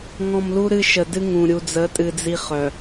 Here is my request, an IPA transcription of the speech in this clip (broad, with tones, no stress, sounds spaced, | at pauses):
ŋ ɔ̃˨ m l u˦ ɾ ɨ˦ ʃ ə˨ d ɨ˦ ŋ ũ˨ ɾʲ u˨ d͡z ə˨˦ tʼ ɨ˨ d͡z i˨ χ œ˨